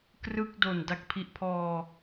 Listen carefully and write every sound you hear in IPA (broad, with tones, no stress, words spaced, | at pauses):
krɯ˥˩k̚ do˨˩nda˥˩k̚ pʰi˨˩ʔpʰɔː˧